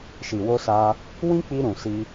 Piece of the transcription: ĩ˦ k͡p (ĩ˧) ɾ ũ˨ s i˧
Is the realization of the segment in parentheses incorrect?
yes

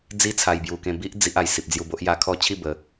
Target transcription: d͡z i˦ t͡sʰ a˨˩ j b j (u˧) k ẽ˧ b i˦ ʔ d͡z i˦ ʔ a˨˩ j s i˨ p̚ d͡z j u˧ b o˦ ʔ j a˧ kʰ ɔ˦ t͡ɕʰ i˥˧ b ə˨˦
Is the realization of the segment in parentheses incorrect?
yes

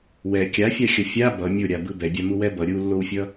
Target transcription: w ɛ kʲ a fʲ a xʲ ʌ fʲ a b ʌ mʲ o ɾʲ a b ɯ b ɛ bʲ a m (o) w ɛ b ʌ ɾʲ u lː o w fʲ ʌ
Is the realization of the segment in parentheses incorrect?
yes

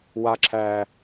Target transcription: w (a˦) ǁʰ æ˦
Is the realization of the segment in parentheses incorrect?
no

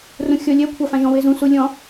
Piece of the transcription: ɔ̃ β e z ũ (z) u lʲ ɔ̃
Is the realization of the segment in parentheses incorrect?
yes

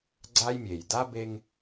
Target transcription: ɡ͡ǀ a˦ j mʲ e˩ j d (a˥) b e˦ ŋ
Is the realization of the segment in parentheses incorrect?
no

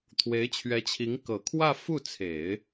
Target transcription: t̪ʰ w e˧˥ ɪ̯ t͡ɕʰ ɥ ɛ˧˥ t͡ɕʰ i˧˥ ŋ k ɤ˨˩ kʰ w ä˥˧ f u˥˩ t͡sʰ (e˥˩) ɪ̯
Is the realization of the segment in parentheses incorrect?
yes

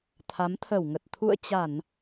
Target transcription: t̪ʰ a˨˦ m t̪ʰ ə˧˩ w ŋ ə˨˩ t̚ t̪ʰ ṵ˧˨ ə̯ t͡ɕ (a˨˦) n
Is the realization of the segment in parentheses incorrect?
yes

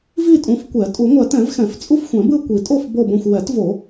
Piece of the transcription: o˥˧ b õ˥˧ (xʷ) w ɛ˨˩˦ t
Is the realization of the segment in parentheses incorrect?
no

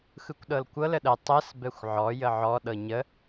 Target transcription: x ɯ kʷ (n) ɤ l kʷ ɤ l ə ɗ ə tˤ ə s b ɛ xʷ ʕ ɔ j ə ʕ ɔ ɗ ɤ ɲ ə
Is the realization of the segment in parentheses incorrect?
yes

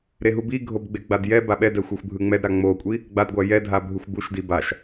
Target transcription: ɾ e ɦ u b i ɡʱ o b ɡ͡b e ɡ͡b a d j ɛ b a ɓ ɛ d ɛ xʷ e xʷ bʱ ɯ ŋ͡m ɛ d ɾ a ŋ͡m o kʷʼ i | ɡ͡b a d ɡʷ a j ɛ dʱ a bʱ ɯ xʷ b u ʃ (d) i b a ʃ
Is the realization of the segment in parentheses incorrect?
no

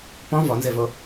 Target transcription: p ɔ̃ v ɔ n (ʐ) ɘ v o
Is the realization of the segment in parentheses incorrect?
yes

